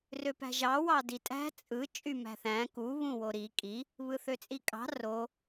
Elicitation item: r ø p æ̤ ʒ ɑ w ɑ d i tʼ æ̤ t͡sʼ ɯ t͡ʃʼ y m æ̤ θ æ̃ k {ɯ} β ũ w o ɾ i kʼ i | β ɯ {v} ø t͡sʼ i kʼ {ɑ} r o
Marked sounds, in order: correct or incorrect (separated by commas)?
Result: incorrect, incorrect, incorrect